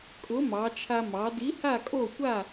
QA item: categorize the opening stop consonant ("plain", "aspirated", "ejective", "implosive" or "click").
ejective